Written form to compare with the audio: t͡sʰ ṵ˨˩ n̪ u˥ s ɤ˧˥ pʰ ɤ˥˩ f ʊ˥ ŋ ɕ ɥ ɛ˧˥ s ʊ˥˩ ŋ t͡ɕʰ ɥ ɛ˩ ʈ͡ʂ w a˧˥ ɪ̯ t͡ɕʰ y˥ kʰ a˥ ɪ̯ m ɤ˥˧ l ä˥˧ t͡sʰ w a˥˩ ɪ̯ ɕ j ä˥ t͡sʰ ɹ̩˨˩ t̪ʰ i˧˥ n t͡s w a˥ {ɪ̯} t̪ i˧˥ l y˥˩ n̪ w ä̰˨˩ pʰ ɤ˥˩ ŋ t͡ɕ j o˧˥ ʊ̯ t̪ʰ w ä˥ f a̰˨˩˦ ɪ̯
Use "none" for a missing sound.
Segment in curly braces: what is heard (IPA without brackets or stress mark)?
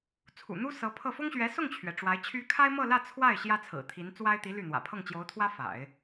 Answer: ɪ̯